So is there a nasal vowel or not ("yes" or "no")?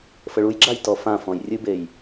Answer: yes